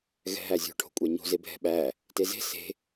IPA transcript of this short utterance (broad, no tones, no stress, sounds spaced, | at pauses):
ɣ ɛ̤ ɦ æ zʲ o̤ ʈʰ o̤ kʷʼ æ ɲ o̤ z e bʱ ɛ̤ ɓ æ | t e z e̤ s e̤